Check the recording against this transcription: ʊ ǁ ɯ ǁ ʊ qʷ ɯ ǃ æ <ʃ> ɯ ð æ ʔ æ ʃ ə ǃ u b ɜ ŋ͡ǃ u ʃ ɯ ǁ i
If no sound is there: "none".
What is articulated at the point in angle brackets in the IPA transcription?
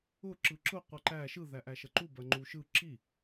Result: ʃ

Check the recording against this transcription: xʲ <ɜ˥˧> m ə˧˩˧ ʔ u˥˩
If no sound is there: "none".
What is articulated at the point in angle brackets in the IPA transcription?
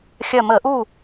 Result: ɜ˧˩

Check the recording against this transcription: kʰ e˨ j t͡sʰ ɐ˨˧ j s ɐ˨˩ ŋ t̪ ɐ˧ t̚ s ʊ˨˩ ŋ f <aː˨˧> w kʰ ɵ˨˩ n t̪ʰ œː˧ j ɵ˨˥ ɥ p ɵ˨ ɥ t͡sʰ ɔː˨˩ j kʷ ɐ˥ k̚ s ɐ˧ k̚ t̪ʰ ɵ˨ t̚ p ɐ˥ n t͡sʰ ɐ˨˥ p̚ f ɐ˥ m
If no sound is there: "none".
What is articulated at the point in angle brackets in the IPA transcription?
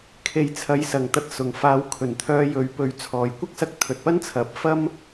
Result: aː˨˧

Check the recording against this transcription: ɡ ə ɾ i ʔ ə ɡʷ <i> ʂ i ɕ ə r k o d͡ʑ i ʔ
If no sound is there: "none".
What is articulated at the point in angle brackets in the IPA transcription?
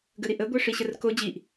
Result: e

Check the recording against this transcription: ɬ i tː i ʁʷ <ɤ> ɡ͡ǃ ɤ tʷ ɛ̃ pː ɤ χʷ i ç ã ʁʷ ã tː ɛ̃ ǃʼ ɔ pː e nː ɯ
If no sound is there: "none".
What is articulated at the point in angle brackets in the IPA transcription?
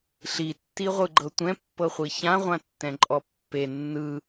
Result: ɯ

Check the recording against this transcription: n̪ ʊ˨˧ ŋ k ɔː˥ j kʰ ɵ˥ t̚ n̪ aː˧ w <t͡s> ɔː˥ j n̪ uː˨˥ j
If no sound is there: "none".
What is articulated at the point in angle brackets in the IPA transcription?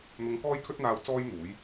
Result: t͡s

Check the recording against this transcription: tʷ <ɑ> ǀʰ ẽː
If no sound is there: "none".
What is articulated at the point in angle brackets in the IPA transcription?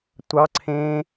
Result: ɑ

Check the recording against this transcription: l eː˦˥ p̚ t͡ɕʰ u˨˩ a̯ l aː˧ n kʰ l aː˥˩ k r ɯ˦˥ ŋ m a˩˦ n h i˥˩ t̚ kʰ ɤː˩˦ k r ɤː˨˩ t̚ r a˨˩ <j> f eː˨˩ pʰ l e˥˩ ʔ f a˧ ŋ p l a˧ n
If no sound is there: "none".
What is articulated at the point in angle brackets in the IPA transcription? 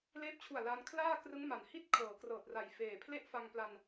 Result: j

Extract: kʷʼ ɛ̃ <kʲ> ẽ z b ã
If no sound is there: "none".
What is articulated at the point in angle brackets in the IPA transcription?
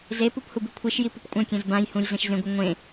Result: kʲ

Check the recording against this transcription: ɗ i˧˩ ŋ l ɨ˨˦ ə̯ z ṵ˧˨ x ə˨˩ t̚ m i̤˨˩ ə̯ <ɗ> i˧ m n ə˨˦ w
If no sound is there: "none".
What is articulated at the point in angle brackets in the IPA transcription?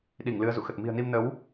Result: n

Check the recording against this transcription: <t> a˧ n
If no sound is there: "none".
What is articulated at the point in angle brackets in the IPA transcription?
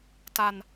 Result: t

